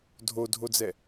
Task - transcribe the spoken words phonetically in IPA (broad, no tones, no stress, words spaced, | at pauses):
dʱodʱod͡zɛ